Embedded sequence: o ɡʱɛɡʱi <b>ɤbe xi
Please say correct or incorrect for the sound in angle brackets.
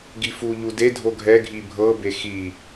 incorrect